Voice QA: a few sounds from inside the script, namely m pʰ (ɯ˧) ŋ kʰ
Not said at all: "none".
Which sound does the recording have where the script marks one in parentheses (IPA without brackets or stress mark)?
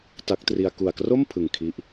ɯ˨˩